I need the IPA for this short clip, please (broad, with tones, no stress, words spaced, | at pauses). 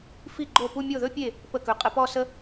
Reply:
fi˥˩ɡ͡ǃo˥˩pu˥˧ mʲo˥˩ðɵ˥pʲe˥˩ | pə˥˩kɵ˨˥ qʼə˨˥pɔ˥˧sə˥